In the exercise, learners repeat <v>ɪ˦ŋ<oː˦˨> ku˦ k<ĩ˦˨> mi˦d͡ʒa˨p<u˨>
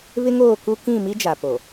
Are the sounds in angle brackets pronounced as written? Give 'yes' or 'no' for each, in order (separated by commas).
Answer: no, yes, yes, no